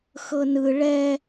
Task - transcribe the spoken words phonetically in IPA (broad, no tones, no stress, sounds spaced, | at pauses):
x ɤ n ɯ ɭ ɛ